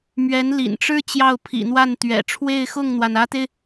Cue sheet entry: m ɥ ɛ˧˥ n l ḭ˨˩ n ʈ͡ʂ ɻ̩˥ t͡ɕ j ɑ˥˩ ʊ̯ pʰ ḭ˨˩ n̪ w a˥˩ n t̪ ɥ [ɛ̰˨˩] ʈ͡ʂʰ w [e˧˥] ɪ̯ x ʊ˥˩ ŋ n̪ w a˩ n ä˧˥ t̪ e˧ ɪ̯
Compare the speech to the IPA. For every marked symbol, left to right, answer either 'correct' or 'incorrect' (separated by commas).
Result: correct, incorrect